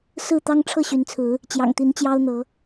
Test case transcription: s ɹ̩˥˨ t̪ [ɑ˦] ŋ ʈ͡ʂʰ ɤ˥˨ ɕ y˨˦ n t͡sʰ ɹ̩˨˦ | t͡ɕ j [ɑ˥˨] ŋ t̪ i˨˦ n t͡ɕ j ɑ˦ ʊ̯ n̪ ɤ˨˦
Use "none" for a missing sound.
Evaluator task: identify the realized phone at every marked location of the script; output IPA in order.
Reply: ɑ˦, ɑ̰˨˩

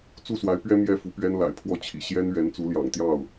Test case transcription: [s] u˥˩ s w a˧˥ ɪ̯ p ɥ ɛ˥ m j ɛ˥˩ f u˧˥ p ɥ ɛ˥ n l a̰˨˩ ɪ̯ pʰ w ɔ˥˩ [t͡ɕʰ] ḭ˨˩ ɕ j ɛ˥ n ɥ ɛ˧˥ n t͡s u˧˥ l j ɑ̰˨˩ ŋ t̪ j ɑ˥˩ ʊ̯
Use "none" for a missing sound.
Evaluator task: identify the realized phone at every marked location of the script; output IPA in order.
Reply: t͡s, t͡ɕʰ

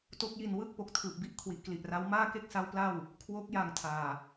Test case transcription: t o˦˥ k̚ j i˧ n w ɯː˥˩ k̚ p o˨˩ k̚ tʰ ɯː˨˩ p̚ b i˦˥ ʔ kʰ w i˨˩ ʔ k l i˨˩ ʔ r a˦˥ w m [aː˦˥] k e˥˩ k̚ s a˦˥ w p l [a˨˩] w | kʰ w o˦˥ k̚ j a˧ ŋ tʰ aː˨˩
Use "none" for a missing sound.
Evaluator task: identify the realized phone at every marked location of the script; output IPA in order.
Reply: aː˥˩, a˥˩

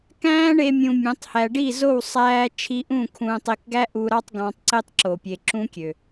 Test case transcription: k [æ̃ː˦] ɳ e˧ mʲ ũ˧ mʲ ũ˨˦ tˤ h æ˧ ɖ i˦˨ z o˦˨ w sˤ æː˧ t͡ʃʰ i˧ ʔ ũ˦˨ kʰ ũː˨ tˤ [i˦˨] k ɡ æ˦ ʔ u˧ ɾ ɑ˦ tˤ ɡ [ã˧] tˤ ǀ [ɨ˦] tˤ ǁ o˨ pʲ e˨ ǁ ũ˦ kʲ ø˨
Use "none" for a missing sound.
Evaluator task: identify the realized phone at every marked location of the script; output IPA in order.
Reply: æ̃ː˦, i˨, ɑ̃˧, e˦

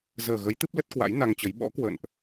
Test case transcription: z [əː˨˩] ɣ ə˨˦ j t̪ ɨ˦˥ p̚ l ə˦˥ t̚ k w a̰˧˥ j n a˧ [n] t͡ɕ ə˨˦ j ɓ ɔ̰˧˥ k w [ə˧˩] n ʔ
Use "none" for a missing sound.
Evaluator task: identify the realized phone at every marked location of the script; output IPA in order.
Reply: əː˨˩, ŋ, ə̰˧˨

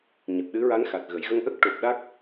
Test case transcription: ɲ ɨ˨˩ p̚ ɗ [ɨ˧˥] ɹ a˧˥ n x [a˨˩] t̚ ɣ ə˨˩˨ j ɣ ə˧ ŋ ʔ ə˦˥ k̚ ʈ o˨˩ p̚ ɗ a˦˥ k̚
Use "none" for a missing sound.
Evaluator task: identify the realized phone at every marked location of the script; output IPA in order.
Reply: ɨ˧˥, a˨˩

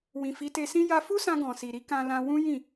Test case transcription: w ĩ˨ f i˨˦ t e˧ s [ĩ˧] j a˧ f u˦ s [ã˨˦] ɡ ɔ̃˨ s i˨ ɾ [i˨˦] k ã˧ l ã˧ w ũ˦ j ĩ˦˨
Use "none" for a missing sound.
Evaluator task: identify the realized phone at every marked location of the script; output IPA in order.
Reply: ĩ˦, ã˧, i˨˦

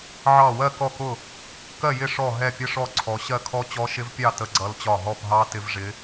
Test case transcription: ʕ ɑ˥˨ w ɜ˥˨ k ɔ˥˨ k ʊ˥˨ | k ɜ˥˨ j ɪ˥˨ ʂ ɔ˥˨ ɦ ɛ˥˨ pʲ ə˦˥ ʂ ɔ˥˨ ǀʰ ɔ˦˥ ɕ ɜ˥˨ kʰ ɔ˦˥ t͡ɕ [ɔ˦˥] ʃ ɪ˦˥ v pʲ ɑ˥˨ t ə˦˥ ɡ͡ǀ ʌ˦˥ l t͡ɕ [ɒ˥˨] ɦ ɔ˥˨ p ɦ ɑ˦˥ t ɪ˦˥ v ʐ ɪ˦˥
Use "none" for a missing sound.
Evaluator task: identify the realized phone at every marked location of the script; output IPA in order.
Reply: ɔ˦˥, ɒ˥˨

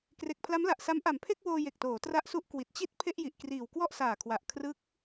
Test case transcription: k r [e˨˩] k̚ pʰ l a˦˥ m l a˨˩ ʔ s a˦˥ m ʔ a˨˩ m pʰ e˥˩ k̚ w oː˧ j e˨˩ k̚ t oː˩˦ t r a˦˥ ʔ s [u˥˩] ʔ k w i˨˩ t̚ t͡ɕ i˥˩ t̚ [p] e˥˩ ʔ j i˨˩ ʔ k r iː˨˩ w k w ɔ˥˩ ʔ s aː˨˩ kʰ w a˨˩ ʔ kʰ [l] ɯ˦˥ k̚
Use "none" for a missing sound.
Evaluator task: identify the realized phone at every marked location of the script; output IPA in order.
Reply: e˨˩, u˦˥, pʰ, r

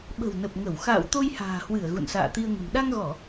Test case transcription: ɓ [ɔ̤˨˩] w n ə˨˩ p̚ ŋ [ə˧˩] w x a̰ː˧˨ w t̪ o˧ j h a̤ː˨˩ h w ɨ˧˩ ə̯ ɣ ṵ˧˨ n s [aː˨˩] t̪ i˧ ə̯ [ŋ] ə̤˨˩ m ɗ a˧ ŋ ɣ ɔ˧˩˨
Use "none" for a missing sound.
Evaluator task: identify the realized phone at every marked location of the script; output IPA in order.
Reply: ə̤˨˩, ə˧˩, a̰ː˧˨, ŋ

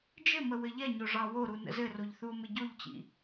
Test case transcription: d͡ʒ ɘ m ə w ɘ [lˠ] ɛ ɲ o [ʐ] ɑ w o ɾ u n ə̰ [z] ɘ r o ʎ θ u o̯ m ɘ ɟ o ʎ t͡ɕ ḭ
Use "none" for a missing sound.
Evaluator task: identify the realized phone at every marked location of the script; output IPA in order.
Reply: ʎ, ʐ, z

